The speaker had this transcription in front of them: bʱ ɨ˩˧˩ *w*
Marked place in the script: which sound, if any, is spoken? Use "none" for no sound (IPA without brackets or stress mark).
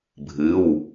w